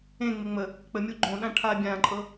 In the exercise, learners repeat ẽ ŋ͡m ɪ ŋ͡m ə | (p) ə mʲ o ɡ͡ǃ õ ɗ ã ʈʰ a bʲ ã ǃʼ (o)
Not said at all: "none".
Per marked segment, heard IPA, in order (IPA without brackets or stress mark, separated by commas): k͡p, ɤ